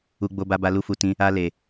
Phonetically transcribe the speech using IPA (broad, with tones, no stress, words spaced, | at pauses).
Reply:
u˧ɡ͡bo˧ba˧ ba˧lu˧fu˧tĩ˧ | a˧ le˧